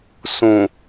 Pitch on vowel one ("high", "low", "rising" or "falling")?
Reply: low